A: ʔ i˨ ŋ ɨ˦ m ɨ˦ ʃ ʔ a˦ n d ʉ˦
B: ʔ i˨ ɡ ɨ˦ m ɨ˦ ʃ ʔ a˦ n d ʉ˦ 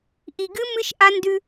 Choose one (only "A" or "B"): B